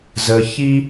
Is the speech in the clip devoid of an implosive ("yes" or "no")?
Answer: yes